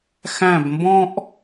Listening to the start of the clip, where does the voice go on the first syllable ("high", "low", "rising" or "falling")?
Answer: falling